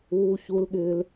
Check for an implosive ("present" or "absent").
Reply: present